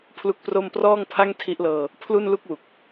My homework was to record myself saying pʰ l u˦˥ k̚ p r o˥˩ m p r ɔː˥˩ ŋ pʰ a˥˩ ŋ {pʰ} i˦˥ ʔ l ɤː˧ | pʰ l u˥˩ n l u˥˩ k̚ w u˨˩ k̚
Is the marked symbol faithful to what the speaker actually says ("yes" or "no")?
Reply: no